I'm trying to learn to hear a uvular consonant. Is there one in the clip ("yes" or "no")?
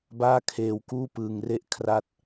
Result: no